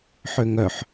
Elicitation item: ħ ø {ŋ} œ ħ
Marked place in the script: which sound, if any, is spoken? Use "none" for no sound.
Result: ŋ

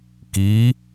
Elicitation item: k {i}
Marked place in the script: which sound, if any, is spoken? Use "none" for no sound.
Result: i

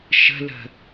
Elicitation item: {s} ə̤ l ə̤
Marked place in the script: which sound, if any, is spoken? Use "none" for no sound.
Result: ʃ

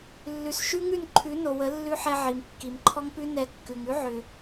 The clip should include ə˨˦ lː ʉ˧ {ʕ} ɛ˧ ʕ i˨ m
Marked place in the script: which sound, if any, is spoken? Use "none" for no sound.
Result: ħ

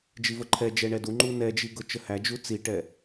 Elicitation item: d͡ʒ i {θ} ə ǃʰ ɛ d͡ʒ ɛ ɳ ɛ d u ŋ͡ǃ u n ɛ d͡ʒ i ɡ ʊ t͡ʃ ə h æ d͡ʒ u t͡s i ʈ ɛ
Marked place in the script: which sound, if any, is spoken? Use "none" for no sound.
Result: v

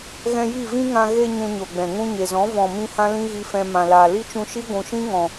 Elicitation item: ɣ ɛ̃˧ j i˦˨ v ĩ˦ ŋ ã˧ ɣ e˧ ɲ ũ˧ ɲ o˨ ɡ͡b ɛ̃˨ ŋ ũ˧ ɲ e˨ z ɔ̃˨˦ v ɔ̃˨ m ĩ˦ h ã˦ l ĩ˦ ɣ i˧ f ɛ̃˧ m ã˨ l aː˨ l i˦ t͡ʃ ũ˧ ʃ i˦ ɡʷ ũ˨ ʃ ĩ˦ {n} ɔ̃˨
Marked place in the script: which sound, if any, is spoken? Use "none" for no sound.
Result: ŋ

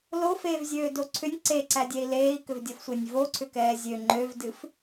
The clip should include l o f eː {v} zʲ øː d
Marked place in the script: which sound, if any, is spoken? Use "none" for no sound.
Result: v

